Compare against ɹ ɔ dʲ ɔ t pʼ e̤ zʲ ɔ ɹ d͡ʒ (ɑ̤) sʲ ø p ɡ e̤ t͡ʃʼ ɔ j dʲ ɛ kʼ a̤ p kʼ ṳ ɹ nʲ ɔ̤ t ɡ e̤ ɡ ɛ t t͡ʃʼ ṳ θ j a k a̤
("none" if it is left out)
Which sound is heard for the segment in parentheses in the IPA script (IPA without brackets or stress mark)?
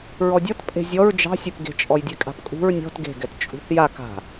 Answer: ɑ̤